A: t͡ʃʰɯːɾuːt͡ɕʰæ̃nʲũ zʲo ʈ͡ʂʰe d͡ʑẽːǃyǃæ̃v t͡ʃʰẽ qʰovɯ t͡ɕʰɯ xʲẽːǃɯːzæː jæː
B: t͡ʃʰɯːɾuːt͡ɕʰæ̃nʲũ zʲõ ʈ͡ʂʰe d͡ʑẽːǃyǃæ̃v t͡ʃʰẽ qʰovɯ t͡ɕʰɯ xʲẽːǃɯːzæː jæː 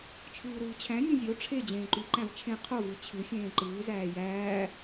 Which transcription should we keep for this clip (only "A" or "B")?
A